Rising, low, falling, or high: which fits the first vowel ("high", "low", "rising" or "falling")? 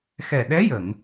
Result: low